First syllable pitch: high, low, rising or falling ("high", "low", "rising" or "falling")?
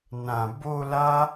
low